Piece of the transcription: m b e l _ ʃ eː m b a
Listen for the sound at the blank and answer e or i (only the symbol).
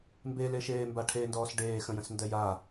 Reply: e